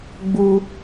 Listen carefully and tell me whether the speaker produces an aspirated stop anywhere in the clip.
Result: no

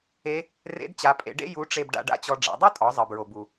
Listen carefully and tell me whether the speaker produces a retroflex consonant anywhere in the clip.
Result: yes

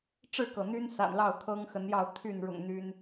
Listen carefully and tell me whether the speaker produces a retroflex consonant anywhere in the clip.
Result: yes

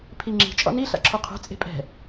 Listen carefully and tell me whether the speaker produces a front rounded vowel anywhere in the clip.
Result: no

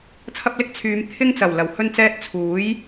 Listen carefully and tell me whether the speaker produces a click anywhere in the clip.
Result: no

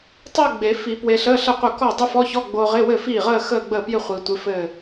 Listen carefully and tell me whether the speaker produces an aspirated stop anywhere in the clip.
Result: no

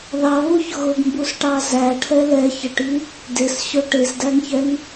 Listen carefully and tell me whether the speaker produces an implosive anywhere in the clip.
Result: no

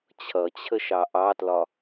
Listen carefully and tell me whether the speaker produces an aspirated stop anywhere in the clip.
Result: yes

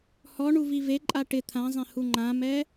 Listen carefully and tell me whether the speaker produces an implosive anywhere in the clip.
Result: no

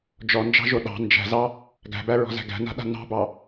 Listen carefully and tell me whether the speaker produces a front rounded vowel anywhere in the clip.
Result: no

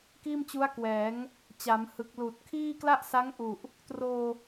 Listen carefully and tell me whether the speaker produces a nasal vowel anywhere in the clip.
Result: no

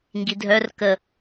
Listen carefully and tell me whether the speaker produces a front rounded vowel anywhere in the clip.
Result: yes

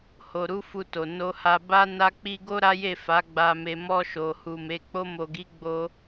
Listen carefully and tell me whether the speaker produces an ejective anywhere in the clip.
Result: no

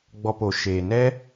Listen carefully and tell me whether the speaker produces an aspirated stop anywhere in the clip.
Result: no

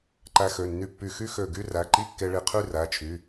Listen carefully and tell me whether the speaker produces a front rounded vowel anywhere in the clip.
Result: yes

